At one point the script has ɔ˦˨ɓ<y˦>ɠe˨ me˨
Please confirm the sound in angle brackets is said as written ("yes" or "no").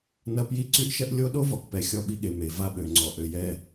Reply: no